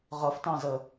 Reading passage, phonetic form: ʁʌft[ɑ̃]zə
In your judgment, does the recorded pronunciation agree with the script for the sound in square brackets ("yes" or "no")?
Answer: yes